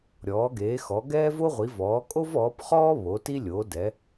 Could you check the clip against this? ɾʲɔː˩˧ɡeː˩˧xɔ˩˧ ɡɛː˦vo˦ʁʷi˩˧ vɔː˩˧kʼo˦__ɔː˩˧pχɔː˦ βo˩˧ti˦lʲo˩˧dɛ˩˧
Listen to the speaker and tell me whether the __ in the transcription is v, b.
v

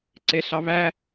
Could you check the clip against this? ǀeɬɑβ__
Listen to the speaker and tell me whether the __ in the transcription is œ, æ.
æ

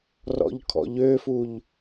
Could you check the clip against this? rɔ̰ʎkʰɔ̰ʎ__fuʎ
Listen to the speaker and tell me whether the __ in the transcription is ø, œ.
ø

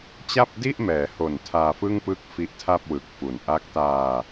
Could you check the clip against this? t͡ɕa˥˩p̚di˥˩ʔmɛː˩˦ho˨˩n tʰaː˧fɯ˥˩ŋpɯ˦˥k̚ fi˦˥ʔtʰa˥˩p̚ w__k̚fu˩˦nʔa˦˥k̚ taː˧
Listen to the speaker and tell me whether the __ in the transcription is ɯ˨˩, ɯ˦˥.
ɯ˨˩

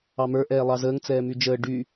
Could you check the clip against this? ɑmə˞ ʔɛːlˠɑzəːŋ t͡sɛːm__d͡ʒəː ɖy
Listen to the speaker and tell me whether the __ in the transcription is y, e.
y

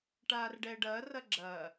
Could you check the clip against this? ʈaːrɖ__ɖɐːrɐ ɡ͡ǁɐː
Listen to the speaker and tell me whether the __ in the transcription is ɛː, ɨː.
ɛː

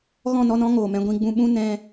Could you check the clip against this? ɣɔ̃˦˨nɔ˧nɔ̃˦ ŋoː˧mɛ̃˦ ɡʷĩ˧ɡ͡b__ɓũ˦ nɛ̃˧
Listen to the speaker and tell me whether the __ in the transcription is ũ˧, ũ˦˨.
ũ˧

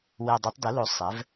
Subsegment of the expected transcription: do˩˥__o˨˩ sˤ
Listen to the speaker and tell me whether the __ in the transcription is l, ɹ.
l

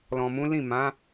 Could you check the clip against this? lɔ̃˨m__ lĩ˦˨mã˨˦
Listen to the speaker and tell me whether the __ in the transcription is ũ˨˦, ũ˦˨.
ũ˨˦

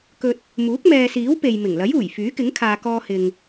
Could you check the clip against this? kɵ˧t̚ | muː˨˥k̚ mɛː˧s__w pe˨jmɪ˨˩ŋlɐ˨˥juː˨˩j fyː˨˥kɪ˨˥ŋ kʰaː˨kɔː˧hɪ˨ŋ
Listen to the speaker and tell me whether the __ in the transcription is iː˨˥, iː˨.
iː˨˥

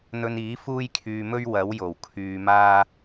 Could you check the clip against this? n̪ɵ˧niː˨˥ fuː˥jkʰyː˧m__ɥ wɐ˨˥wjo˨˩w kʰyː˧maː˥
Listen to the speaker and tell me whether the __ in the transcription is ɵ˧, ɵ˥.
ɵ˥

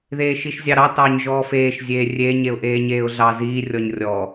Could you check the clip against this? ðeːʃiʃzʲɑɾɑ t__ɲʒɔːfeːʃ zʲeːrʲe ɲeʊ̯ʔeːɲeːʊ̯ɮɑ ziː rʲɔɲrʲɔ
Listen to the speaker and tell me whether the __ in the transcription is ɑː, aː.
ɑː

